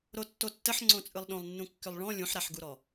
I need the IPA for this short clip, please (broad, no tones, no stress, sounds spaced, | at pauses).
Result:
ɾ o tː o tː ə ħ ŋ͡ǀ õ t͡sʼ ɯ lˠ ɗ õ lˠ nː ũ kː ʏ lˠ ɭ ɔ̃ lʲ ũ ħ ɾ a ħ ɡ u ɾ ɔ